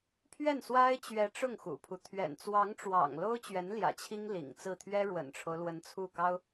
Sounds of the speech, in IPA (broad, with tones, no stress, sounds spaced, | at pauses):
pʰ ɥ ɛ˥˩ n s w a˥ ɪ̯ t͡ɕ ɥ ɛ˧˥ ʈ͡ʂ ʊ˥˩ ŋ x ṵ˨˩ pʰ u˦ t̪ʰ ɥ ɛ̰˨˩ n t͡s w ɑ˧˥ ŋ ʈ͡ʂ w ɑ̰˨˩ ŋ l o˥ ʊ̯ t͡ɕ ɥ ɛ˧˥ n l j ä̰˨˩ t͡ɕʰ i˥ ŋ l ḭ˨˩ ŋ t͡s ɹ̩˥˩ t̪ʰ ɥ ɛ˥ ɻ w ə̰˨˩ n ʈ͡ʂʰ o˦ ʊ̯ l w ə˧˥ n t͡sʰ u˥˩ k ɑ˥ ʊ̯